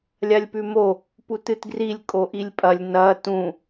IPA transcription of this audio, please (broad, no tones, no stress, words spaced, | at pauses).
lʲalʲpʉmo | putɨtɡrilʲ kʼoʔilʲpʼɐlʲ nɐ tũ